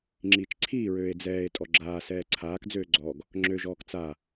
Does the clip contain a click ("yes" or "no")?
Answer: yes